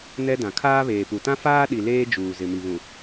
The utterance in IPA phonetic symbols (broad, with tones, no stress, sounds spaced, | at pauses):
n ɛ˦ d ã˨ kʰ aː˦ β eː˨ p u˨ t ã˦ f aː˦ ɗ i˨ l eː˦ d͡ʒ uː˨ z ɪ˨ m i˨ β ũ˨